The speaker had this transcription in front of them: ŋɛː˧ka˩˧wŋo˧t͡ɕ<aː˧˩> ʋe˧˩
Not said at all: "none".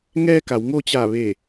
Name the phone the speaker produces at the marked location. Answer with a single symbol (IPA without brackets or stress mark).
aː˧˩